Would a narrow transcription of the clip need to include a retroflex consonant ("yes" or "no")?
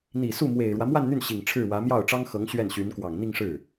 yes